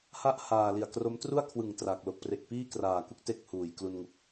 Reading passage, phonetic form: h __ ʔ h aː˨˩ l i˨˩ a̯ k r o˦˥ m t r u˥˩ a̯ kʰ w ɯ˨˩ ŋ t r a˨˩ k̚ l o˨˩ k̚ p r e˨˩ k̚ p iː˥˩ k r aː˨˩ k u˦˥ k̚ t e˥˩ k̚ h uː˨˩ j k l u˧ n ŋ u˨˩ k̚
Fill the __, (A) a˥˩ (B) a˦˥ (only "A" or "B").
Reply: A